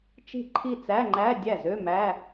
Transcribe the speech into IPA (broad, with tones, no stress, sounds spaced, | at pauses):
t͡ʃ i̤˥˩ ǃʰ i˥˩ t͡s æ˧˥˧ ŋ͡ǃ æ˧˥˧ dʲ æ˥˩ z ø˧˥˧ m æ˧˥˧